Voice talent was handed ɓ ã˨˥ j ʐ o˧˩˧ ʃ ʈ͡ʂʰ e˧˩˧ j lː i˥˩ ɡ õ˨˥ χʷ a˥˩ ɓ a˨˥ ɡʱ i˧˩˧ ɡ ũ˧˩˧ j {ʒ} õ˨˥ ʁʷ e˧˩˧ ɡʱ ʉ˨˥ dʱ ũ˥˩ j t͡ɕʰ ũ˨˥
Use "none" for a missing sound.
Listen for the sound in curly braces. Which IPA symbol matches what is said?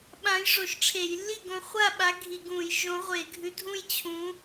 ʒ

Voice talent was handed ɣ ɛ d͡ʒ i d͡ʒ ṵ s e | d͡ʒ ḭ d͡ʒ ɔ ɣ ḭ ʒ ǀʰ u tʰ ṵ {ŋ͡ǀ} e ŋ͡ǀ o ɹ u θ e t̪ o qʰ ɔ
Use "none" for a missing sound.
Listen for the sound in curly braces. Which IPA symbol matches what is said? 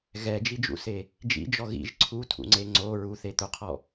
ŋ͡ǀ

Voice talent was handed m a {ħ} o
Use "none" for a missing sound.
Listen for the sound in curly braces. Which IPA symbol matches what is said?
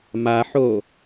ħ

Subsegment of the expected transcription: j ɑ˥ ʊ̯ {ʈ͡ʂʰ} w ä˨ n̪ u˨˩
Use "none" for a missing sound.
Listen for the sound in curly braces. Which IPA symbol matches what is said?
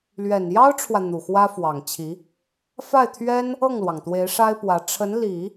ʈ͡ʂʰ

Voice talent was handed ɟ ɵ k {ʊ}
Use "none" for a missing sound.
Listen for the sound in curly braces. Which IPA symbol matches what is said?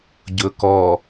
ɔ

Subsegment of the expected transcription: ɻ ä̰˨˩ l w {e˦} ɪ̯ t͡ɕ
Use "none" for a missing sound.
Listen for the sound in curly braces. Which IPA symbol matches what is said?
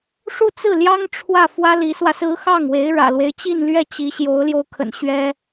e˦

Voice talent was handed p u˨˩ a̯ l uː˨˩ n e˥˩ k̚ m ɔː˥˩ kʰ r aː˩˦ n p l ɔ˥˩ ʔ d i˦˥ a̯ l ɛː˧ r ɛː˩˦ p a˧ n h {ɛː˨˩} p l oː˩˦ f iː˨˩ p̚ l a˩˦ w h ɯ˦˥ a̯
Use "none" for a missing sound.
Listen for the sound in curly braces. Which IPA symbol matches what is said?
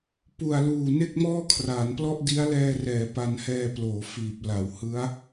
ɛː˧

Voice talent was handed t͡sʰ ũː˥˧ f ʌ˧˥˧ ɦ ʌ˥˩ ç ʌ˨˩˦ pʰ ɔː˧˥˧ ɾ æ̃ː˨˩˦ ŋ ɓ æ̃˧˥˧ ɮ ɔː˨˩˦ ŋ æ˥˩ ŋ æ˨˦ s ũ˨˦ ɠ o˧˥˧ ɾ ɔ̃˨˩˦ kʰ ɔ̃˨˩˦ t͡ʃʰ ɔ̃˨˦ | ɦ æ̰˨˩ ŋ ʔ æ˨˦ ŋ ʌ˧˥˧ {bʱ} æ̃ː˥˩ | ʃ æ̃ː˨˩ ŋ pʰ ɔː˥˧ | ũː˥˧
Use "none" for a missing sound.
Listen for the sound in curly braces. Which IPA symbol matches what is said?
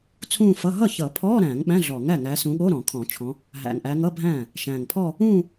bʱ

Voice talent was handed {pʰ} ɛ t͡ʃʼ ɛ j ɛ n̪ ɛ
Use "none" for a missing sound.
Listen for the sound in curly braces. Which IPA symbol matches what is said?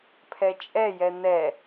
pʰ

